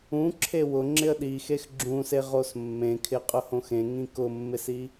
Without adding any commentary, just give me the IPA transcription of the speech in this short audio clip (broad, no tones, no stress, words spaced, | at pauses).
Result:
ũ ǁʰewʊ ŋ͡ǁɪə̯ɗixex ɡ͡ǁũse ʁosmːẽkʰɪqʼʊ hõxẽŋĩ kʊmːɪsi